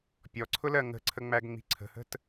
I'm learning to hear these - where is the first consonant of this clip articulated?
lips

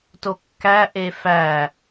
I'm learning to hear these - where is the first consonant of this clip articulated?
tongue tip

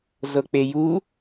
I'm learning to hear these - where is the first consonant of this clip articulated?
tongue tip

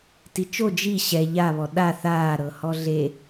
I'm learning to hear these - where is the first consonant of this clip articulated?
tongue tip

